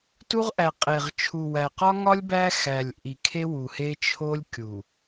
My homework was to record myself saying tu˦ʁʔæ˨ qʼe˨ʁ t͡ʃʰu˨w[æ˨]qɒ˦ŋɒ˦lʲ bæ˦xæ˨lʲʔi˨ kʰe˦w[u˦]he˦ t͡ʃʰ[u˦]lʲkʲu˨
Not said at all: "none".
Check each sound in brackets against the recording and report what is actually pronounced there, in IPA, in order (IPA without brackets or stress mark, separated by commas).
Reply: æ˨, u˨, o˦